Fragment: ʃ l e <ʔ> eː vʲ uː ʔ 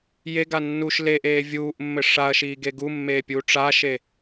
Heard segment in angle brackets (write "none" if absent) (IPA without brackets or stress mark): ʔ